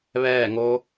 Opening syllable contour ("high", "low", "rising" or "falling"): falling